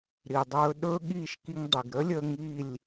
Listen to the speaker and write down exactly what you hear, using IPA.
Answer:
ɾi˨dˤɵː˧ ɗɵː˦ɠiː˦˨ʃki˧ŋdˤi˨ɡ ɾəː˦lʲəː˧ ŋiː˦˨lʲ

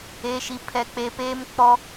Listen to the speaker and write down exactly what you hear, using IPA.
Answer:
e˨ʃi˨ pʰɛ˨k͡pe˨ peː˦m k͡pɔ˦

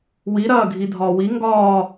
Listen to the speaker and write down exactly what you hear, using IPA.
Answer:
wiɾɐːɡʱi dʱɒːwi ŋɡɒː

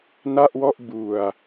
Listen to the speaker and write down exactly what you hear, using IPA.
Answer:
na˥˩ʔwɔ˥˩ʔ bu˨˩a̯

